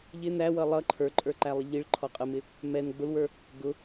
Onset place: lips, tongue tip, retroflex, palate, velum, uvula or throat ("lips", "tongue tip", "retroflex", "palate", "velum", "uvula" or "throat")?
palate